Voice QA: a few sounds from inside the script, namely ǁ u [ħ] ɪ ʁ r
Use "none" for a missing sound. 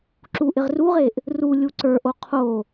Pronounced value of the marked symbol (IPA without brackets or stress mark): ʔ